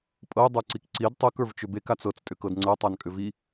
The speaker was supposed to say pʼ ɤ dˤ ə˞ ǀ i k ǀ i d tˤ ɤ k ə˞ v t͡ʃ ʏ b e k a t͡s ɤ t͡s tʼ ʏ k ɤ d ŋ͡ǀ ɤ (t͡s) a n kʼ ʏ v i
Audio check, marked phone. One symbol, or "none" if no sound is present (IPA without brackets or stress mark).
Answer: tˤ